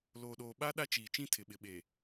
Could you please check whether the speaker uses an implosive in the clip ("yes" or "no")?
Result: yes